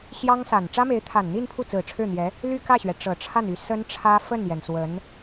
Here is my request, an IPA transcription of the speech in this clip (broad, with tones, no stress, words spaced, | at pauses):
ɕjɑ˥ŋsa˨˩n ʈ͡ʂä˥me˧˥ɪ̯t̪ʰa˨˩nn̪i˥˧n pʰu˥˩t͡sɹ̩˨˩ʈ͡ʂʰɻ̩˥˩n̪jɛ˧˥ | ly˥˧kä˥˩ɕɥɛ˩ ʈ͡ʂɤ˨˩ʈ͡ʂʰa˥˩ny˧˥ sə˥nʈ͡ʂʰä˥ fə˥˩njɛ˩n swə˧˥n